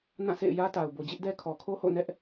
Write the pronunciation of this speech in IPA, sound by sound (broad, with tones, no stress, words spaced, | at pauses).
nã˦˨ sḛ˦˨ɪ̯jä˦ta˨ʊ̯ bo˨d͡ʑɪ˦ʔdɛ˦ kʰɔ˨kʰo˦ho̰˦˨nɛ˦ʔ